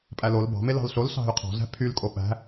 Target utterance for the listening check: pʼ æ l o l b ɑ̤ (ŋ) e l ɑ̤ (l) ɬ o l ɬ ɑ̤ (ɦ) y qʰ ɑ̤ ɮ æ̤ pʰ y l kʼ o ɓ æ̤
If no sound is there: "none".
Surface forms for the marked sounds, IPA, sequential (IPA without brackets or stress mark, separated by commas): m, l, ɦ